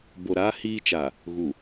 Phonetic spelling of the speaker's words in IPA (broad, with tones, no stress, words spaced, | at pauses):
bo˨ɾaː˦ hiː˦t͡ʃa˨ | ɣu˨